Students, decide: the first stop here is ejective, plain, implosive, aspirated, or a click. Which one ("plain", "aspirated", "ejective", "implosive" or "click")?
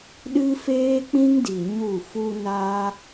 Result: implosive